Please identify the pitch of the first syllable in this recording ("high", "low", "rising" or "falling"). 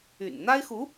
low